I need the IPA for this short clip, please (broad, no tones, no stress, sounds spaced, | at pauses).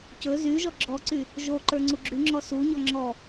c ɵ z y ʒ ɔ ɡ͡ǁ ɔ ǀ y | ʒ o ǃ ə˞ ŋ͡ǀ u ɡ͡ǁ y ŋ͡ǁ ɔ s u ɲ ɔ ŋ͡ǁ ɔ